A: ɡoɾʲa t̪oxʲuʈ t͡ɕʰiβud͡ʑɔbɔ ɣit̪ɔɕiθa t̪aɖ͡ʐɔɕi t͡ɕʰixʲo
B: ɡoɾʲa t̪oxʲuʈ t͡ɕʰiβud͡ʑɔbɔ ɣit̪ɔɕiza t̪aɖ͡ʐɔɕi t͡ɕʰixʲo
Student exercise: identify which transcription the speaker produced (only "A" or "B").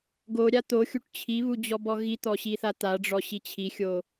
A